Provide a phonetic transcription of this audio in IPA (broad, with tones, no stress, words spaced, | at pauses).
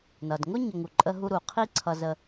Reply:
nʌ˩dŋʊ˥ ɲə˧ŋu˩ǃʼə˥ɦu˥ ɾu˩qʰi˥ ǀʰʌ˧zə˧